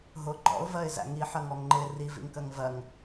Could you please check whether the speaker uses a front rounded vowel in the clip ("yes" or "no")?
no